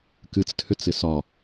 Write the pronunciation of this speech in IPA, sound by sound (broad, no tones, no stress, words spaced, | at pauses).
kɨt͡stʰʏt͡sɪ sɒ